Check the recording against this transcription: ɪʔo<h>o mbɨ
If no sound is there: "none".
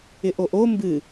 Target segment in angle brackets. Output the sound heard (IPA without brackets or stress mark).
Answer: ʔ